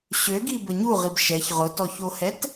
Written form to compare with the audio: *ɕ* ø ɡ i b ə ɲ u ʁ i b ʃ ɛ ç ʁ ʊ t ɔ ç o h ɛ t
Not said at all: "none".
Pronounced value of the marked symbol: ɕ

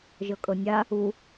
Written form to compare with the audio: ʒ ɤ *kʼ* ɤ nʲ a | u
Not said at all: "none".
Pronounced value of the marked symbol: kʼ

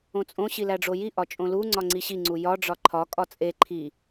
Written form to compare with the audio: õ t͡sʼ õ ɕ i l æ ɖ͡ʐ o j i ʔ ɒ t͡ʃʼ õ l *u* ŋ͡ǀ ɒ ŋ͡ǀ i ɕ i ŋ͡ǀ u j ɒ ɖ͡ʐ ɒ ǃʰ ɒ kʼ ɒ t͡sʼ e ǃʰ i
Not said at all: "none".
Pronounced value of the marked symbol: u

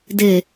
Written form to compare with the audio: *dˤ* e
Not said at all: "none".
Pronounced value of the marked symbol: d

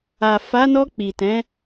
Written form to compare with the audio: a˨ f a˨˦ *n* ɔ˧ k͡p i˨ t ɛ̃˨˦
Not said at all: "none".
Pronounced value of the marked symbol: n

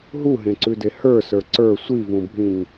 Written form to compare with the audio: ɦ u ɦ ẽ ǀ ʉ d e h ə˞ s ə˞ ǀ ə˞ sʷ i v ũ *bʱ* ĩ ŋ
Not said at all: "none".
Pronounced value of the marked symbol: bʱ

